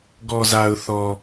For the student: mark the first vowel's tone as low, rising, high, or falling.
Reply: low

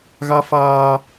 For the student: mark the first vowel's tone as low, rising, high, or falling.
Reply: high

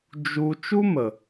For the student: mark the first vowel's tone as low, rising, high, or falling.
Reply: high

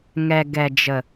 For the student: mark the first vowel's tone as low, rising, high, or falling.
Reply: low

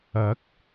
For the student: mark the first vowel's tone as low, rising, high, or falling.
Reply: rising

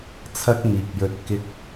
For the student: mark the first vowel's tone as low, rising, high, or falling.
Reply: high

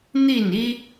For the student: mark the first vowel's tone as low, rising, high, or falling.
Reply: falling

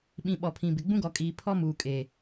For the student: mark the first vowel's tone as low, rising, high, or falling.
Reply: low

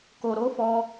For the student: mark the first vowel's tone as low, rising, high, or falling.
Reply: low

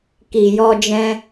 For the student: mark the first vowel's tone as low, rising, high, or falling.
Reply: low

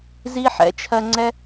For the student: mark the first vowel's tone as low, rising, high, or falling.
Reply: high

